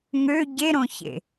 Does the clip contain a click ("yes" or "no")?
no